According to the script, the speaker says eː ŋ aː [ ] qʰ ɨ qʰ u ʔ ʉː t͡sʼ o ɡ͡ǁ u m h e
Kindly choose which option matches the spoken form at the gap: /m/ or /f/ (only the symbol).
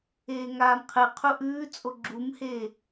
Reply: m